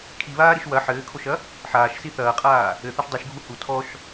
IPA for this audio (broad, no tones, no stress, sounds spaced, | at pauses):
kʰ i β aː ɾ i ʃ w ɐ ħ ɘː kʰ o ʃ ɐ | ħ aː ʃ s i θ ɐː qʼ aː | ɘ θ ɐ ʃ dˤ u ʃ ɡʱ u h u tʰ ɔ ʃ